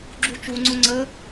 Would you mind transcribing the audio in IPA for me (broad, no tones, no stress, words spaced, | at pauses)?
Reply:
ɡ͡ǁut͡ʃuŋ͡ǀʊ ŋ͡ǀə